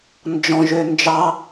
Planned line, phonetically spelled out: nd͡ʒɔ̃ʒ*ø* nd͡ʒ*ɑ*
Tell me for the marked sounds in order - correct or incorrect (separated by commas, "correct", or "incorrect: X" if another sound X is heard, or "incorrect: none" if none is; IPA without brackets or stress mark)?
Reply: correct, correct